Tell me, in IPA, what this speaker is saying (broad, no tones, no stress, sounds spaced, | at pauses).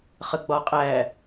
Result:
χ ə ɡ͡b ɒ qʼ æ